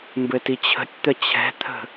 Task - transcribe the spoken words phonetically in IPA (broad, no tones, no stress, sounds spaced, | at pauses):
m b ɘ t i t͡ɕʰ ə̤ tʲ t̪ ə t͡ɕʰ ɛ̤ t̪ʰ ə̤